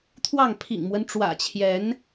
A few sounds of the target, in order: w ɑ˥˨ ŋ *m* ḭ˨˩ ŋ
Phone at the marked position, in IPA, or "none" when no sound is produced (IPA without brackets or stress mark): pʰ